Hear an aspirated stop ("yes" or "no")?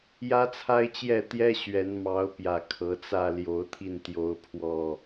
yes